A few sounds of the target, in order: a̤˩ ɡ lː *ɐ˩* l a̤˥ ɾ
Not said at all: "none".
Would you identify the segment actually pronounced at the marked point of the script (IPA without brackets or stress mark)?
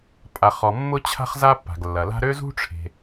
ɐ˩